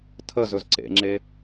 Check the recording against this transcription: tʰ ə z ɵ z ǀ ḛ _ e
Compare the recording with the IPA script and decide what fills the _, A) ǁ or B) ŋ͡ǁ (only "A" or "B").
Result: B